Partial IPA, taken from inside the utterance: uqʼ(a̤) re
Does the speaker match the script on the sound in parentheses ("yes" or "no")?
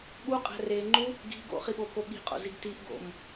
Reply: no